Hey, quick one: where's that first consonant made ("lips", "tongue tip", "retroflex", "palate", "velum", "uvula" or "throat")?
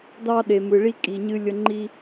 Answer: tongue tip